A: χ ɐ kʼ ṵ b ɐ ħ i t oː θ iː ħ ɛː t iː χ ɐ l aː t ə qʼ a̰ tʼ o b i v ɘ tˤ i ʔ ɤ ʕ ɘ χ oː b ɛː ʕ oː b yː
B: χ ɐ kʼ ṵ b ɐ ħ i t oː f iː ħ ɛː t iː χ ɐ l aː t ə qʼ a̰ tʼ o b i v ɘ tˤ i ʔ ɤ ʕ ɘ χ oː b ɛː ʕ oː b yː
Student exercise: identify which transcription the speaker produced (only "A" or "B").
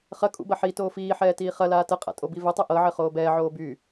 B